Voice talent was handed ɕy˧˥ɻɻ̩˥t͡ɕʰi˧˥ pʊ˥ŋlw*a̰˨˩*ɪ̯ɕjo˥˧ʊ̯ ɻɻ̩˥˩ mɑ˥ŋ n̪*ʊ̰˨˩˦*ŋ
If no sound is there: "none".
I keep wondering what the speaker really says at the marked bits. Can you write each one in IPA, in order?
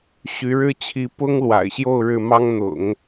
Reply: a̰˨˩, ʊ̰˨˩˦

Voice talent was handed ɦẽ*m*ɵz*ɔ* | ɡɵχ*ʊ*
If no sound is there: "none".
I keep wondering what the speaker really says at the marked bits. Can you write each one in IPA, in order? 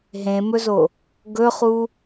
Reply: m, o, u

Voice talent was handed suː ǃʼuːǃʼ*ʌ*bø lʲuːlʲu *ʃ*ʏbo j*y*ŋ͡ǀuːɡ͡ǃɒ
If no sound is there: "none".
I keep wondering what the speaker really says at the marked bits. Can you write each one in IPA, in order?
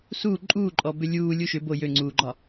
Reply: ɔ, ʃ, ø

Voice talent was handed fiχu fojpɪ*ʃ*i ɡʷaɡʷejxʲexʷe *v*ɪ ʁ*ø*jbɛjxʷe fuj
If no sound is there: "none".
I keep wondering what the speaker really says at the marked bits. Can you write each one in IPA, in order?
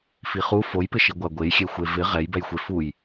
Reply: ʃ, v, ɛ

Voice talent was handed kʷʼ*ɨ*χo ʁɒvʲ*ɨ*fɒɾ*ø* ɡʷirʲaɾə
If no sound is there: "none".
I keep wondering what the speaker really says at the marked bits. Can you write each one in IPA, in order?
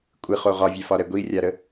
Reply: ɨ, ɛ, ɛ

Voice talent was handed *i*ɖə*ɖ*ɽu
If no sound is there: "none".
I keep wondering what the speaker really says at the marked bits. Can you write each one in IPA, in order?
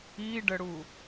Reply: i, none

